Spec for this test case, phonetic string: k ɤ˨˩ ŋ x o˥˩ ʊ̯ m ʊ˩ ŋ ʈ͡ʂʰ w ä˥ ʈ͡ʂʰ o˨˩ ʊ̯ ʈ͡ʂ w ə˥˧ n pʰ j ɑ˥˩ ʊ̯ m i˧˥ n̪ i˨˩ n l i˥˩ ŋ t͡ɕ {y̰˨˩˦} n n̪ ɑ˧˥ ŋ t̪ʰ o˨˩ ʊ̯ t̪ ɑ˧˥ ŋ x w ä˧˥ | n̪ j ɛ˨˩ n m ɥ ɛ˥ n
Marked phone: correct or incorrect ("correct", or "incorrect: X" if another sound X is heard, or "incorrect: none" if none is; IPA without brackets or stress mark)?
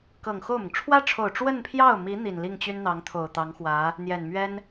incorrect: y˥